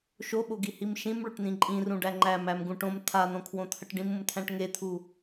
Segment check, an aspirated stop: present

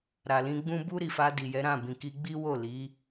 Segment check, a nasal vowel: present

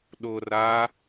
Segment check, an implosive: present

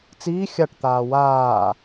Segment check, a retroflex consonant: present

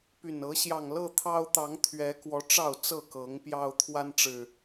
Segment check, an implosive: absent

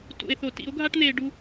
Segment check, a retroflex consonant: present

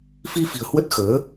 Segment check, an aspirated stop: absent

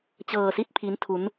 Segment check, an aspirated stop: present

